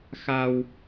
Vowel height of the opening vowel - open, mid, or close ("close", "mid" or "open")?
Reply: open